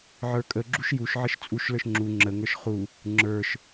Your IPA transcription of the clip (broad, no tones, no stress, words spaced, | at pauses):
ʕə˞kʼəɡ͡ǁuʃ juʃʕəʃ t͡sʼuʃlə˞ʃ ŋ͡ǁu ŋ͡ǁəŋə˞ʃ χu | ŋ͡ǁə˞ʃ